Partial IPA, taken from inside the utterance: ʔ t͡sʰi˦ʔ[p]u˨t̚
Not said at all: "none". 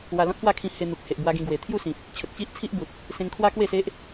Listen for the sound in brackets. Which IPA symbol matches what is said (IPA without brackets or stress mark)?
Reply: b